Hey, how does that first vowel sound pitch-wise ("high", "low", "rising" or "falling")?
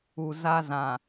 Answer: low